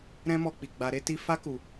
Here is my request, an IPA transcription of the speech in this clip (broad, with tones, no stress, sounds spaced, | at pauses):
ɾ ɛ̃˦ m ɔ˧ k͡p i˨ ɡ͡b a˧ ɾ e˦ t i˦ f a˦ k u˧